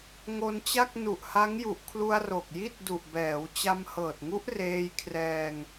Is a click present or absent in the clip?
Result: absent